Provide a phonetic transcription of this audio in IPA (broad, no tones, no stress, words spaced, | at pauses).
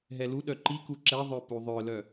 ɦɛluɗœ ǃiku ǁɛðˤœ puðˤœlœ